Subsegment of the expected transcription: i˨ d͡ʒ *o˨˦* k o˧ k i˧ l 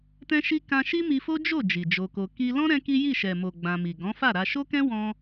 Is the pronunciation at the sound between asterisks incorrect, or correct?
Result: incorrect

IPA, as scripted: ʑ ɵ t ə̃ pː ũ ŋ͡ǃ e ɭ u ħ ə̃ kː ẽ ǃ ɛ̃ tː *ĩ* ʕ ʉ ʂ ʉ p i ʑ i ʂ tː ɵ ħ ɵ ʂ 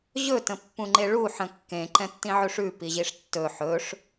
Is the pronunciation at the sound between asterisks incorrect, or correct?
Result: correct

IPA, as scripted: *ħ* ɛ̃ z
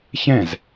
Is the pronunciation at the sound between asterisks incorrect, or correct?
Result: incorrect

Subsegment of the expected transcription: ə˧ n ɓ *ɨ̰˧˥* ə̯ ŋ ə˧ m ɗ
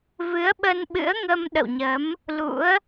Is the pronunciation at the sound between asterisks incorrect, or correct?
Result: correct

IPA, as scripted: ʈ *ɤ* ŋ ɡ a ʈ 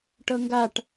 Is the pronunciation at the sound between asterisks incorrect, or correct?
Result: correct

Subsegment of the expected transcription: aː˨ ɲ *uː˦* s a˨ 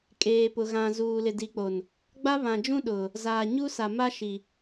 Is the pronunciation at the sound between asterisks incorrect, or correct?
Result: incorrect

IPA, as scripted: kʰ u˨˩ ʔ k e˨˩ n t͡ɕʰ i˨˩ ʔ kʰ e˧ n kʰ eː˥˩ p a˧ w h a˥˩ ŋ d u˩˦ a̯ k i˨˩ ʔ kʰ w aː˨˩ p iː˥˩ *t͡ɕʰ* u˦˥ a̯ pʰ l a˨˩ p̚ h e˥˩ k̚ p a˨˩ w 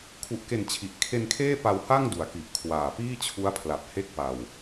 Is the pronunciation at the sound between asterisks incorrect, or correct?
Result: correct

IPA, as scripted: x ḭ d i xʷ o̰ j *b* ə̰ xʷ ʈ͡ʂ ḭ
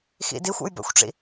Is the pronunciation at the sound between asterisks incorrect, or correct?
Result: correct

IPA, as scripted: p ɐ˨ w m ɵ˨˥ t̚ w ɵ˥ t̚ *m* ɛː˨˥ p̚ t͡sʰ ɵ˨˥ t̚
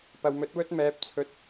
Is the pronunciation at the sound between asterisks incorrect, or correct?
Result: correct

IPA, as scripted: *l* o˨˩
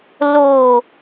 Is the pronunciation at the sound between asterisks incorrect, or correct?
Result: correct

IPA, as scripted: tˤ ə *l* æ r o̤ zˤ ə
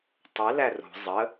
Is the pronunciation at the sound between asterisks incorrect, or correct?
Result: correct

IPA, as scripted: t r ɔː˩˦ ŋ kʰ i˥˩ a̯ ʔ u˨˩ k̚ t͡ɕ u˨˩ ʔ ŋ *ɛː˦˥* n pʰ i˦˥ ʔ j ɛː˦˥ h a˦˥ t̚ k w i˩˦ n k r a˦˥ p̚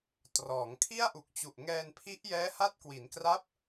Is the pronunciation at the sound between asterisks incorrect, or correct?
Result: incorrect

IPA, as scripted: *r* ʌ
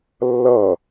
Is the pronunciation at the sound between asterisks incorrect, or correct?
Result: incorrect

